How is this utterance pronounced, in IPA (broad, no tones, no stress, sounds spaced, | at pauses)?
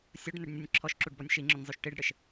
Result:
sʲ ʊ ɖ n ɘ ɖ nʲ ʊ nʲ ǁʰ ɔ ʃ ǁ u ɖ b ɔ nʲ ʃ i ŋ͡ǁ ʊ nʲ zˤ u ʃ ʈ i ɖ ɽ ɘ ʃ